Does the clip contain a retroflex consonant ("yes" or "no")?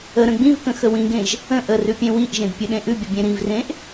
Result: no